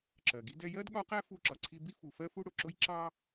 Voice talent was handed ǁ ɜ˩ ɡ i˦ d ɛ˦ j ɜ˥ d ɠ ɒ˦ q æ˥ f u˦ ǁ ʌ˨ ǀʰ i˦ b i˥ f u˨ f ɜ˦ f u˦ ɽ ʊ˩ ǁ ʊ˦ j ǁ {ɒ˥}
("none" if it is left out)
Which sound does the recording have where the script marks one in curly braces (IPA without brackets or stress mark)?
ɑ˥